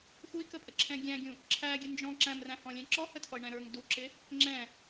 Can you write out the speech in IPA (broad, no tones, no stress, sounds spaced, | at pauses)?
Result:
x u i̯ k ə pʼ ə ǁʰ ɛ̃ ɡʲ æ̃ ɡʲ ũ | ǁʰ æ ɡʲ ə n d͡ʒ ɔ̃ ǁ æ̃ m r æ̃ h ɔ̃ lʲ ɛ̃ ǁ ɔ h ə tʰ ɔ i̯ ɳ ɛ̃ ɾ ə˞ ŋ d u ǁ ɪ | ŋ͡ǁ ɛ̃